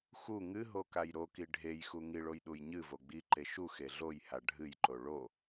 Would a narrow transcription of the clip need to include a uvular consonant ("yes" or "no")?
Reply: no